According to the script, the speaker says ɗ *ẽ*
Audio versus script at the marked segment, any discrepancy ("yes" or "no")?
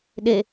yes